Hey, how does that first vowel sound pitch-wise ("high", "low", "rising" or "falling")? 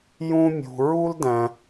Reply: high